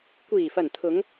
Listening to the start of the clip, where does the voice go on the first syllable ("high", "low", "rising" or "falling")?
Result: low